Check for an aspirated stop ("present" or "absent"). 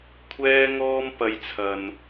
present